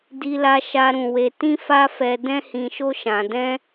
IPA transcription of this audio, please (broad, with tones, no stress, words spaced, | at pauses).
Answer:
di˧la˧ʃa˧ ɾũ˧ we˧tĩ˦fa˦fɛ˧ dɛ̃˦hĩ˧ʃo˦ʃã˧ dɛ̃˦